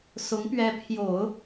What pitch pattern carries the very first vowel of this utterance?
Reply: rising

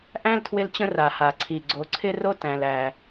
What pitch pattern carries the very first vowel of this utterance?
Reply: high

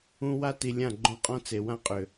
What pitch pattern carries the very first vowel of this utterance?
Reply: high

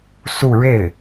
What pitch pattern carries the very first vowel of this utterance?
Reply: falling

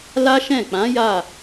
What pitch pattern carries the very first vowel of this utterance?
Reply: high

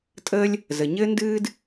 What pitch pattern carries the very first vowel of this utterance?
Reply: high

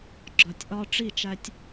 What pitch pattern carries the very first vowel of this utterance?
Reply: low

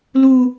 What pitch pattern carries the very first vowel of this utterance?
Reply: high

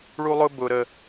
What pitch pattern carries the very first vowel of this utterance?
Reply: high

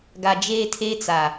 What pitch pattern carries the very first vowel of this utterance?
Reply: low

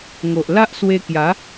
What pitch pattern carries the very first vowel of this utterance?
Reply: low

